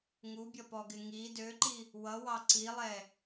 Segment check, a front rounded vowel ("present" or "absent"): present